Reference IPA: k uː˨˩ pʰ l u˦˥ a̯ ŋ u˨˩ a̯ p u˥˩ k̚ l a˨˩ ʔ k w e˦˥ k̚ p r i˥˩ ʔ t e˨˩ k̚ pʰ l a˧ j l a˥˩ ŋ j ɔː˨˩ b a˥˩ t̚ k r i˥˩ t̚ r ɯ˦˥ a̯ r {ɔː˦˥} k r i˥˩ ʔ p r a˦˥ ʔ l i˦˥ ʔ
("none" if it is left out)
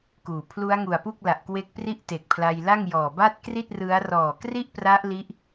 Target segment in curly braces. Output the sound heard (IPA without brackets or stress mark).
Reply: ɔː˨˩